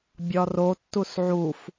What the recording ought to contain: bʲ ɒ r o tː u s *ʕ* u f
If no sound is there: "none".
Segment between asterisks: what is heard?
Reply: ʕ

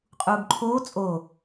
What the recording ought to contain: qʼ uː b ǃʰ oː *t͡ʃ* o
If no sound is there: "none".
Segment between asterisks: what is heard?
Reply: t͡sʼ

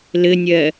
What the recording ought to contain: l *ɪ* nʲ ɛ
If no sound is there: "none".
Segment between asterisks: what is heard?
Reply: ɪ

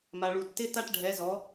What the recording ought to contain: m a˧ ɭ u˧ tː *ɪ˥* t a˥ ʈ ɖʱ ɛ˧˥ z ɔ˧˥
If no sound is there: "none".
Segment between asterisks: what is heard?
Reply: ɪ˥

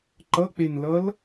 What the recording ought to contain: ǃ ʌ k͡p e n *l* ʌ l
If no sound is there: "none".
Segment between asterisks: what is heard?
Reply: l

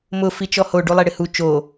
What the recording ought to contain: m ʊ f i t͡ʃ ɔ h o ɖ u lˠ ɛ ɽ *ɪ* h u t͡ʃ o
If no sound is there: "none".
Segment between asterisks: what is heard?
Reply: ɪ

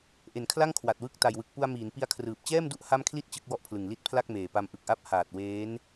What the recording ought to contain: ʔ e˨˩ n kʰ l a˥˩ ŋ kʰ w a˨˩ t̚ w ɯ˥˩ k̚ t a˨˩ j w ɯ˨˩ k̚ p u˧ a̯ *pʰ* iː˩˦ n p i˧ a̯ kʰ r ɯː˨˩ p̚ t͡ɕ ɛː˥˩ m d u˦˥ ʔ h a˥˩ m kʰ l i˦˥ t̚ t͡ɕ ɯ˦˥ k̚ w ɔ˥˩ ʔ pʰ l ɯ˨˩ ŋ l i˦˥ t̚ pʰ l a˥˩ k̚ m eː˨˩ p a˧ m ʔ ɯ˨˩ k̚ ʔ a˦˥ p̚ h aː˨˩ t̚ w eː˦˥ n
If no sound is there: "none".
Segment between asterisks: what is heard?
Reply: m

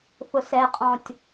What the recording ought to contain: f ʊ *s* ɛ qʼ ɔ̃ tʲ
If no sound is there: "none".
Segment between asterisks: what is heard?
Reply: s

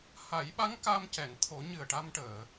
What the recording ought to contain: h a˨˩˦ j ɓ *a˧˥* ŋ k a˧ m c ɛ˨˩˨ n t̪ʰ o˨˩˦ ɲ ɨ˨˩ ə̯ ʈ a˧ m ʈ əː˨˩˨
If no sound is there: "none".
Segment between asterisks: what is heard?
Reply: a˧˥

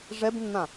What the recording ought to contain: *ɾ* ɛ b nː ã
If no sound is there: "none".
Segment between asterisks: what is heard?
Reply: ʐ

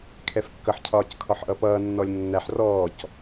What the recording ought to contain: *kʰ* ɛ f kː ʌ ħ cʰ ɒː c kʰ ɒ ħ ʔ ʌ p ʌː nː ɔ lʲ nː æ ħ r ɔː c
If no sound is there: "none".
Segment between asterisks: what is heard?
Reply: kʰ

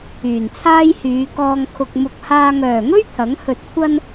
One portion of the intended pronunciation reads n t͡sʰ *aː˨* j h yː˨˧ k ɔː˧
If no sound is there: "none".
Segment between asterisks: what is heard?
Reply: aː˥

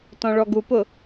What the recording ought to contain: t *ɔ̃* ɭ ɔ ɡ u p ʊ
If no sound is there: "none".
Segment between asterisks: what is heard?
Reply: ɔ̃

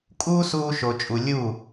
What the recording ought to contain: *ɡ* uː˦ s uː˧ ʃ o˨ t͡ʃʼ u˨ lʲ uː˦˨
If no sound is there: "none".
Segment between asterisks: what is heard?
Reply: kʼ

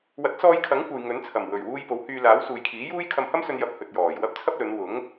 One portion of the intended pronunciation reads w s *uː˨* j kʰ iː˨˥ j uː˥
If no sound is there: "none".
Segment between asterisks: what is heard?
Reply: uː˨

